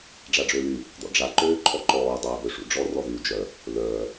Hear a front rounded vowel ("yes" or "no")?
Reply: yes